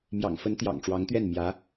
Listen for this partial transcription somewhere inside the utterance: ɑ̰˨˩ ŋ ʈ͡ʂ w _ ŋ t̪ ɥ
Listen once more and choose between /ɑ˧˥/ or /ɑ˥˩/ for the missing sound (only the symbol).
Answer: ɑ˧˥